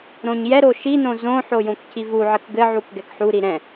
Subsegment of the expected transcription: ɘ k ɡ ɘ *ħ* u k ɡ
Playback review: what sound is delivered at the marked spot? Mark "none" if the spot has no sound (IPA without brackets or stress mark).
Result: ʕ